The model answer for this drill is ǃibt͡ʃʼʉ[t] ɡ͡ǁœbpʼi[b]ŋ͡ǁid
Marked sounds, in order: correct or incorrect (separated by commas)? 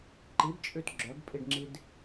correct, incorrect